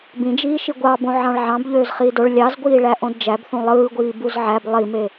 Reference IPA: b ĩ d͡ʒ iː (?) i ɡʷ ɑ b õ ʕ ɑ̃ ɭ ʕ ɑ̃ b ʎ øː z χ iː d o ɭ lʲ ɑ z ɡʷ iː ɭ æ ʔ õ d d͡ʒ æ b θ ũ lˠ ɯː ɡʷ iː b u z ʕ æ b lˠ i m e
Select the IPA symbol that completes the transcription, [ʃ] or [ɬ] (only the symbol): ʃ